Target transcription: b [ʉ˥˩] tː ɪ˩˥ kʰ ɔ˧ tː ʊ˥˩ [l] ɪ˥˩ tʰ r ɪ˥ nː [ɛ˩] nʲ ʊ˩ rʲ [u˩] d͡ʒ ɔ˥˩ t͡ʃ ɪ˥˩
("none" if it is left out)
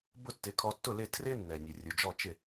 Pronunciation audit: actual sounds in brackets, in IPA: ʊ˥˩, l, ɛ˩, u˩

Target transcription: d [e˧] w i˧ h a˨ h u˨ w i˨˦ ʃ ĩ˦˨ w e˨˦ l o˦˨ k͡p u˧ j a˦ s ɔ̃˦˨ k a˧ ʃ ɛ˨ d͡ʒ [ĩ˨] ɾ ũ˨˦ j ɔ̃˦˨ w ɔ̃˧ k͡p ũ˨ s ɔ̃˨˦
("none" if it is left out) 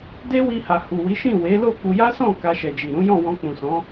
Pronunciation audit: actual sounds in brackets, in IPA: e˦, i˨

